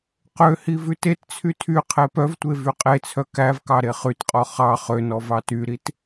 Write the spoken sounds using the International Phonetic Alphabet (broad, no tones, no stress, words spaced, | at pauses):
qøhi vʉtett͡sʰy tʰy qʰepœvtʷe vyqʼet͡sʰœ kævkɑ ɾeχytqʼɔ χɑ χønɔ vɑtyɾit